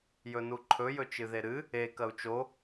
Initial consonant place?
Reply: palatal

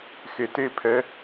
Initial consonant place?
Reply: velar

